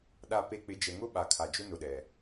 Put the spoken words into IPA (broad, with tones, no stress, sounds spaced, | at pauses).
ɗ a˨ p e˨ k͡p ɪ˨˦ d͡ʒ ɛ˨ ŋ ʊ˦ ɓ a˨ kʰ a˨ d͡ʒ ʊ˦ n ʊ˨ ɗ ɛ˨